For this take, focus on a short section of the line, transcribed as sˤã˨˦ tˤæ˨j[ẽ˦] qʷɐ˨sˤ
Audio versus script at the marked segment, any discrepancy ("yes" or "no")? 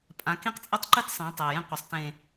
no